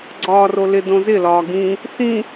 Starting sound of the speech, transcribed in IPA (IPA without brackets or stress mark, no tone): ɡ͡ǀ